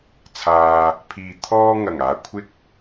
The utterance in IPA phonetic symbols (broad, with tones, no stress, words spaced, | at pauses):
t͡sʰaː˨ | pʰiː˨ t̪ʰɔː˧ ŋɐ˨˩ŋaː˨ kʷʰɪ˥k̚